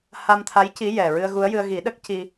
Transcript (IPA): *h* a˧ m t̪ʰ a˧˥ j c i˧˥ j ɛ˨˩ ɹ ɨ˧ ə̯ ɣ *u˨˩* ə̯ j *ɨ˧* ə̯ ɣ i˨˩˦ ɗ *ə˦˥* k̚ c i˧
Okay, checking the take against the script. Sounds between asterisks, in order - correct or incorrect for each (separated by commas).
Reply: correct, incorrect, correct, correct